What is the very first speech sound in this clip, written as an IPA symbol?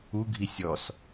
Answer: u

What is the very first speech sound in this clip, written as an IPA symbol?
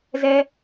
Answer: z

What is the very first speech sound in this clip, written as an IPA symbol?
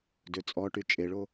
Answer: d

